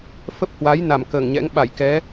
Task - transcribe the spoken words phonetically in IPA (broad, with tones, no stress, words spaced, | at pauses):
fə˦˥p̚hwa˨˦j na˧˩mkəː˧˩ŋɲɛ̰˧˥ŋ ɓa˧˩jkɛ˨˦